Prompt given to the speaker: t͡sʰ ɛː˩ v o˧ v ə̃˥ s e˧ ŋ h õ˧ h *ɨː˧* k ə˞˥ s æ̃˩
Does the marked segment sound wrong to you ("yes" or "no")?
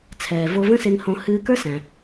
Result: no